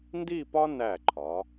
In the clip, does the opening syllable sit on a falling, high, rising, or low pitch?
falling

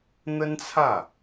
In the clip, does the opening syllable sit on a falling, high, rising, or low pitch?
high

